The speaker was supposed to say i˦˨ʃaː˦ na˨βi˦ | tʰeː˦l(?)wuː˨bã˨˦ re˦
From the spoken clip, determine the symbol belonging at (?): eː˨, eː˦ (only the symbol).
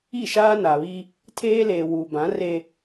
eː˨